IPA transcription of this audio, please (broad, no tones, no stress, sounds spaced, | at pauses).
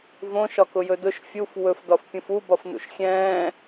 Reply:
v õ ʃ ɒ k ʊ j ɵ d ʊ ʃ fʲ u f w ɵ f d ɒ f pʲ ũ f u b ɒ f n ṵ ʃ xʲ ɛ̃ː